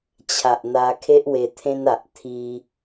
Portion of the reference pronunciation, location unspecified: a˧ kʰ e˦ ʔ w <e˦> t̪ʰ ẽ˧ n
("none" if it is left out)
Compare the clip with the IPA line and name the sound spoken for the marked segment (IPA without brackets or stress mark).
e˧